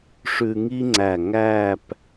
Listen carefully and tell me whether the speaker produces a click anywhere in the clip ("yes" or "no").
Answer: yes